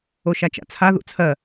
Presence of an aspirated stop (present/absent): present